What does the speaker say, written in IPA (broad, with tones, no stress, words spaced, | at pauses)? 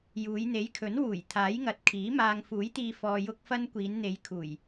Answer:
juː˨˧jn̪e˨˥jkʰɵ˨˥n wuː˨˩jt̪ʰaː˨˥jŋɐ˨t̚ kʰiː˨˥maː˧ŋ fuː˨˥jt̪iː˧ fɔː˧jʊ˥k̚fɐ˥n kʷiː˨˧nn̪e˨˧j kʰuː˨˩j